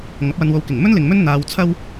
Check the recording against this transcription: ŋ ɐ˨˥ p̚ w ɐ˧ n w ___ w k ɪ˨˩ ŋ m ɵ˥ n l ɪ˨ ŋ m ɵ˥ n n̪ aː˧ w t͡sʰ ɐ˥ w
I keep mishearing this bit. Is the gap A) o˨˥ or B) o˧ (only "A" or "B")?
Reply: B